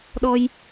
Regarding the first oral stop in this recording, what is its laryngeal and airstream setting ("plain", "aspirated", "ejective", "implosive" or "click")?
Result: implosive